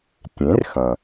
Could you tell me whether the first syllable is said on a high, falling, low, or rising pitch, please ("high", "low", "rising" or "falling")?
rising